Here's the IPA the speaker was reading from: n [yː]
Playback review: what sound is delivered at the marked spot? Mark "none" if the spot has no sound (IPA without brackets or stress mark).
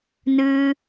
ɨː